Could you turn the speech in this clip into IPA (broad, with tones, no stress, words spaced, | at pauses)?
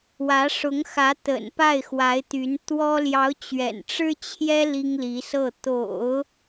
wä˧˥ʂʊ˧˥ŋxä˧˥ t̪ə̰˨˩n pa˥˩ɪ̯xwa˧˥ɪ̯t̪y˧˥n t̪wɔ˥ ljɑ˧˥ʊ̯t͡ɕɥɛ̰˨˩nʈ͡ʂɻ̩˥t͡ɕʰjɛ˥ li˥ŋli˧˥sɤ˥˩ t̪o̰˨˩˦ʊ̯